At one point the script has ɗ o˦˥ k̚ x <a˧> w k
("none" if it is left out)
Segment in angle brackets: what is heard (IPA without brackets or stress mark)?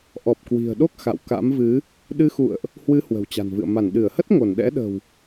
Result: a̰˧˨